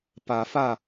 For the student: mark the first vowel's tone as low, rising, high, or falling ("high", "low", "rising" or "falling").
rising